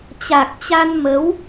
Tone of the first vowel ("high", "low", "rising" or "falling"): low